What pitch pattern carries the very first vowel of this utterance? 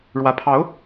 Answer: rising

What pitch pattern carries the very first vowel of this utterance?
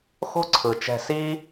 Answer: high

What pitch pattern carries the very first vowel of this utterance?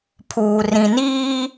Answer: low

